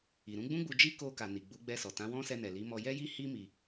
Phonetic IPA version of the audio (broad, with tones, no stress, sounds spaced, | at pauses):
i˨ ɾ ũ˨˦ ɡ͡b ũ˦ ɡ͡b u˧ d͡ʒ i˦ k o˧ k a˨ n i˨ ɡ͡b u˨˦ ɡ͡b ɛ˧ s ɔ˨ t ã˨˦ w ɔ̃˦ s ɛ˧ n ɛ˨ l i˨˦ m ɔ˧ j ɛ˦ j i˦ h i˦ m i˧